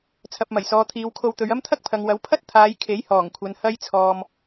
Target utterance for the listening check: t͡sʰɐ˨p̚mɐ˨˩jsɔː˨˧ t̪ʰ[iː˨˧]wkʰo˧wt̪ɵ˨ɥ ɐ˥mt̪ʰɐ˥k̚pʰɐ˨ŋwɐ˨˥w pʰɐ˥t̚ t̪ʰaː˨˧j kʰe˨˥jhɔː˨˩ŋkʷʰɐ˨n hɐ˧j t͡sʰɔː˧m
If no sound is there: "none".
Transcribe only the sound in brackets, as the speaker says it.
iː˨˧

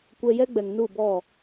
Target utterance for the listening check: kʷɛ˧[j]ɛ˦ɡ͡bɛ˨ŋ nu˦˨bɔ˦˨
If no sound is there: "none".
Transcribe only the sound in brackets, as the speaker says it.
j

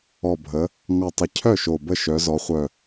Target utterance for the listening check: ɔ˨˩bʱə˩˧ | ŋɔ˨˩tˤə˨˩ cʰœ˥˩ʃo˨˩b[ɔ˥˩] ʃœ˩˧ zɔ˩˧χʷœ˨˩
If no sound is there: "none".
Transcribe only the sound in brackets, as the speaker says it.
ə˥˩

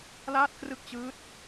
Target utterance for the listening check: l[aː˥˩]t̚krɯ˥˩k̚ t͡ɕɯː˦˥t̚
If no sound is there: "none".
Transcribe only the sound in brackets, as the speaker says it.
aː˥˩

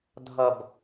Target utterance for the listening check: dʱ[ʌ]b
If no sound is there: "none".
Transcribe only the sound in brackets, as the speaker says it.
ʌ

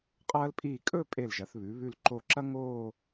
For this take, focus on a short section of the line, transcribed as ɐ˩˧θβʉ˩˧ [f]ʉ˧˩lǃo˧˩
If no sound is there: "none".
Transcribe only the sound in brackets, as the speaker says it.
β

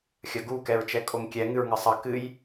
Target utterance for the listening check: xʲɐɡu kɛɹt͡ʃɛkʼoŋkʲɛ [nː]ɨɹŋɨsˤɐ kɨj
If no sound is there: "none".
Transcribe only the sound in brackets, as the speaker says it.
ŋ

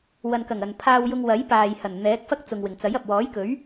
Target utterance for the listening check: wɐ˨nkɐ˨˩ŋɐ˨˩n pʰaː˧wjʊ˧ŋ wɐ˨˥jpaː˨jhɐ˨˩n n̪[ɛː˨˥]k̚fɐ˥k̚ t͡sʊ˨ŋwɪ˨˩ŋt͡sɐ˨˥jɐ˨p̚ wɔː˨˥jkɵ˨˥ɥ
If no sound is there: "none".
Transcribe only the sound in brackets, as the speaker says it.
ɛː˨˥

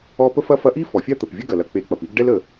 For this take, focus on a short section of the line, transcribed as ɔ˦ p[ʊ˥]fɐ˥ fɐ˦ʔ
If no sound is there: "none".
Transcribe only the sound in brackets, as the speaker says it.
ə˥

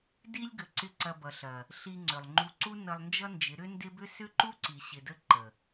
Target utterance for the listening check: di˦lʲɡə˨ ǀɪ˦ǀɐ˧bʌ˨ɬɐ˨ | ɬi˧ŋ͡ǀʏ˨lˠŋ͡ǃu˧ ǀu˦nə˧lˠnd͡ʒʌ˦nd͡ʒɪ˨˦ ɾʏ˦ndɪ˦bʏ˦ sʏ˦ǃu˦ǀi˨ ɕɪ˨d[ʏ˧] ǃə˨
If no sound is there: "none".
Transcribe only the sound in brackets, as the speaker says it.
ə˧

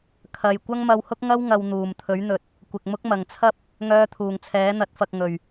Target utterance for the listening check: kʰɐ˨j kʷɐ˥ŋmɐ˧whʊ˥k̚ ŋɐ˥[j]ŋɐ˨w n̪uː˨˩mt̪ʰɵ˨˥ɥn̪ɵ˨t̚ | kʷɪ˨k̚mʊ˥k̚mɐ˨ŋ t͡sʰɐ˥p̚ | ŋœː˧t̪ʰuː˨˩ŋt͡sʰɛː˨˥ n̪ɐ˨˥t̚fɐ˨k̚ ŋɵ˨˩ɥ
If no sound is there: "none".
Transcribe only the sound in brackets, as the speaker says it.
w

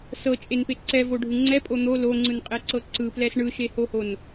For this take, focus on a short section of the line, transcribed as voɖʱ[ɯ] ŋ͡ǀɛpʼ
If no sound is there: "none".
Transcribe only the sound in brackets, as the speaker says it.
ɯ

